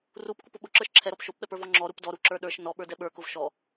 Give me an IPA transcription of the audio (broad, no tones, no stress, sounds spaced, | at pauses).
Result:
r u p kʷ i p ʊ ɓ ʊ ǁ ə˞ ʃ ǁʰ ɛ ɾ ɔ p ʃ o p ɓ ɛ p ə˞ v ɔ ŋ͡ǁ ɔ ɾ u p d ɔ ɾ u ǁ ə˞ ɗ ə˞ ʃ n ɔ ɓ ə˞ d ɛ ɓ ə˞ k ʊ v ʃ ɔ